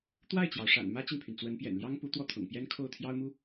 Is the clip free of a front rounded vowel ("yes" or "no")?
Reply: no